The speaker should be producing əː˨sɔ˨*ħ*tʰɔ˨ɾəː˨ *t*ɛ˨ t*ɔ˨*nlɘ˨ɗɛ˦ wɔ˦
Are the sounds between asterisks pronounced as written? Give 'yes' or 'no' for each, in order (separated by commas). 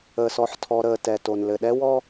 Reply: yes, yes, no